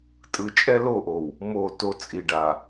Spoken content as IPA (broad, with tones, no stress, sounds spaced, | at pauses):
tʼ ɯ˨ t͡ʃʼ ɛ˦ l o˦˨ ʔ o˨ w | m o˦˨ t o˦ t͡sʼ i˨ ɖ a˨